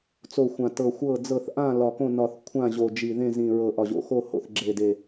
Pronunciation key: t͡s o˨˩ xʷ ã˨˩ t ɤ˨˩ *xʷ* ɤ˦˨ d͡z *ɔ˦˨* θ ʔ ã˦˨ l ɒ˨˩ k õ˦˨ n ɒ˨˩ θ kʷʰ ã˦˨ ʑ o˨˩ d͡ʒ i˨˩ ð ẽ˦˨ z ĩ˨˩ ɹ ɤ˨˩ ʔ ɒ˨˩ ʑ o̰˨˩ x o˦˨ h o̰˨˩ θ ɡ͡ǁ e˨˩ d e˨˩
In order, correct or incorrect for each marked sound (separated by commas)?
correct, incorrect